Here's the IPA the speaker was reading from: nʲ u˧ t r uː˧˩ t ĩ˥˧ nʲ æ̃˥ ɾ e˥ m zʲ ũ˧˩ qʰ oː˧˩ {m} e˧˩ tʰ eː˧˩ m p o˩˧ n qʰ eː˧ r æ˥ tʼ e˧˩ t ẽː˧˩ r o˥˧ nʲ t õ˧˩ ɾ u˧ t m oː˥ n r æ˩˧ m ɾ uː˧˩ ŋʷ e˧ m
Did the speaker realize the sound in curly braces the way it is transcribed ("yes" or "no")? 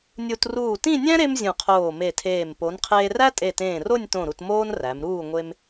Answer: yes